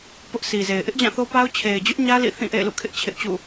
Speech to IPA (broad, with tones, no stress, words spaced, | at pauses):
pʊ˦ʔsi˨ze˨ɪ̯ ʔɪ˦ʔd͡ʑã˦˨θo˦pa˦ʊ̯ t͡ɕʰe˨ɪ̯d͡ʑʊ˦ʔɲä˦ lḭ˦˨θĩ˦˨ ʔḛ˦˨ɪ̯lṵ˦˨kʰɪ˦ʔ t͡ɕʰɪ˦ʔt͡ɕṵ˦˨